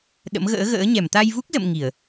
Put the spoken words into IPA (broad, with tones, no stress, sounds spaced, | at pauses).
ɗ ə̰˧˥ m ɣ ə̰ː˧˥ ɣ ə̰ː˧˥ ɲ ɛ˧˩ m t̪ a˧ j v u˦˥ k̚ z ə̰˧˨ m ŋ i˧˩˨ ə̯